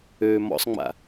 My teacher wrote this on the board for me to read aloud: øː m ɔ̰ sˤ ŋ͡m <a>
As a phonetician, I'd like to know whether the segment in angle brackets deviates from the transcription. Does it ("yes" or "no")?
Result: yes